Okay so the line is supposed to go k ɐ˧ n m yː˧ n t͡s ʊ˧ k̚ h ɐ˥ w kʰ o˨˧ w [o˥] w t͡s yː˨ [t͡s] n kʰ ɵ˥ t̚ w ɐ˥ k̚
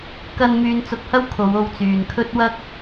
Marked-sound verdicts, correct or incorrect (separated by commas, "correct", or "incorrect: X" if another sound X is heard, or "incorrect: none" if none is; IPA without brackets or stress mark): incorrect: o˧, incorrect: none